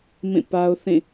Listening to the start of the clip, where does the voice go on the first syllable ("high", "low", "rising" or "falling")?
falling